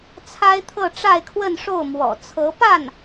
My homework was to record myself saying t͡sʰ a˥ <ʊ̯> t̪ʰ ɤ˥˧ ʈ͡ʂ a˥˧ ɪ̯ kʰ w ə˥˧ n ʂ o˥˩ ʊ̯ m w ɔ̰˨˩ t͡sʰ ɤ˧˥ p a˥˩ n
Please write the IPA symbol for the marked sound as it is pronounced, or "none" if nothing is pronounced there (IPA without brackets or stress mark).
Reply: ɪ̯